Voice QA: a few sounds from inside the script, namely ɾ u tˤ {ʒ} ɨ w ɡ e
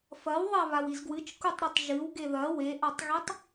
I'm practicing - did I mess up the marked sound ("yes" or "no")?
no